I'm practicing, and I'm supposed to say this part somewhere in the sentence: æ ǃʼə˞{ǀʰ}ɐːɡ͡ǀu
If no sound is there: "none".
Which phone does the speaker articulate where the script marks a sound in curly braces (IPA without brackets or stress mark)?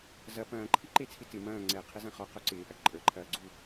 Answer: ǃʰ